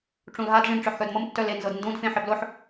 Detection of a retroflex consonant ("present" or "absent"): present